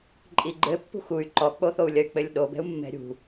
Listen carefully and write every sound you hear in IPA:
ǃʼiɡ͡ǃɘ pːṳxuy̯ ǃɔk͡poθou̯lʲɐy̯ k͡pɘlʲɗobɛ̤u̯ mːɛ̤ɾʲṳ

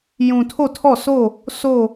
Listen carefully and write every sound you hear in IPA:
jũ˨tʰo˦˨ tʰɔ˦˨sʰo˦˨ | so˦˨

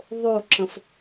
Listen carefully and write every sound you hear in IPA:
ðˤoǁə̃f

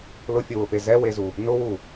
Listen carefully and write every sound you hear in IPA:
lʊfʲʊwʊfe zɛwezu | nʊwu

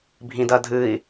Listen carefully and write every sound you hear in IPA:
bʱĩdɐdʱɨi̯

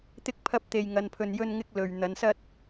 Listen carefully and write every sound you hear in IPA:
t̪ɪ˥k̚pʰɐ˥p̚t̪e˧jŋɐ˧n pʰɵ˧njɵ˥nŋɪ˥k̚lɵ˨ɥ n̪ɐ˨˧nsɐ˥t̚

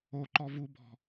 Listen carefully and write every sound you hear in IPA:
oǃɔ vubɔ̤

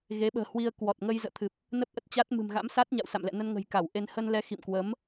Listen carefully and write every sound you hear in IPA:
ɣe˨˦ɓə̤ː˨˩hwi˧ə̯ kwɔ˨˩t̚ŋə˧jzə̰ː˧˨t̪ʰɨ˨˩p̚ | nə˦˥p̚ʔə˦˥t̚t͡ɕa˦˥t̚ mɨ̤˨˩mɣa̰˧˥msa˦˥t̚ ɲa̰˧˨wsa̰˧˨mlɛ̰˧˨nə˧n ŋə̤˨˩jka˧˩wʔe˧n hə˧nlɛ˨˦ xḭ˧˨mkwə˨˦m

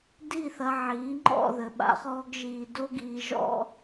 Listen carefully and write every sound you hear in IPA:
di˦˨θɐ˧ʕiː˨˦ ŋ͡ǃɔ̰˦˨ðɘ˨ɓa̰˧ χɔː˦ɡʒiː˧ do˦ɡiː˧ ʒɔ̰˦

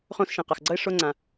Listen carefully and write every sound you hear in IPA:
χõ˥sʃẽ˩ qa˩xɡ͡ǀʌ˥ɪ̯ ʂo˥ŋ͡ǀã˩

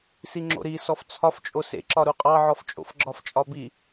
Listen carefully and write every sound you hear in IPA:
siŋ͡ǁo̰ɾi sɔft͡sʰɒft͡ʃʼo sḛǁɒɾu qʼɑʕɔft͡ʃʼo̰f ɡ͡ǁɒft͡ʃʼɒbi

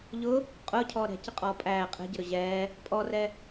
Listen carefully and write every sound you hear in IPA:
ʎʊ | qʼʊːcʰɔː ɾɛ̤cəqʼɔː pʼæː qʼɛ̤ɟəɾʊ ʑɛː | pʼɔrɛ

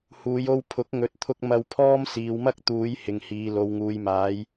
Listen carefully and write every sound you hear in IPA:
huː˨jo˧w pʰʊ˨˥k̚ŋɵ˨˥t̚t̪ʰʊ˧k̚ mɐ˧wpʰɔː˥m siː˨wmɐ˥k̚ t̪uː˨˧j hɪ˨ŋhiː˨ lo˨wŋuː˨jmaː˨˧j

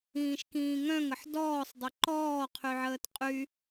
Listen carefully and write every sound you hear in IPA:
ĩːʃkĩːŋœ̃ŋəħ dɔːsˤdˤɪ ǃɔː qʰyʕəːtqʼy

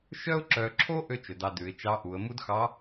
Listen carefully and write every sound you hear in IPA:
ʃœ˥ʊ̯ǁœ˧ǁʰo˥ ʔø˥t͡ʃɵ˩dɑ˧ dʉ˩˧ɪ̯t͡ʃɑ˧˥ʔu˩˧ə̯ mu˥dxɑ˧˥

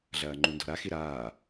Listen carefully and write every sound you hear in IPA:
ɮɐːŋ͡ǃundɔ̤ɾa xiɾaː

